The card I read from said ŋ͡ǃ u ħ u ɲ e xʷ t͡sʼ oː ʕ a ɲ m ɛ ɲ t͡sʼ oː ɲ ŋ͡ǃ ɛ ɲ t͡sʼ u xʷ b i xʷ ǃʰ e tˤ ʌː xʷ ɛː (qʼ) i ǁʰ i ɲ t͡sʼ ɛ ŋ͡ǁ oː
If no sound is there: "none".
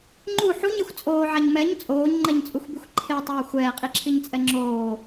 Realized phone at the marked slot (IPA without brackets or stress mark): qʼ